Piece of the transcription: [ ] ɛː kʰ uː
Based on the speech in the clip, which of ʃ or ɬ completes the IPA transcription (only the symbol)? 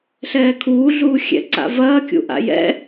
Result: ɬ